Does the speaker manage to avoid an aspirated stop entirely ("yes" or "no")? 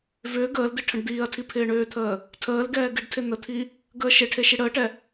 no